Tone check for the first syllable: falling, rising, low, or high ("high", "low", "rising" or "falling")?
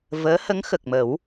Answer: rising